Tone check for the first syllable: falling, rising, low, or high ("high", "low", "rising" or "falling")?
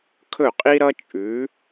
falling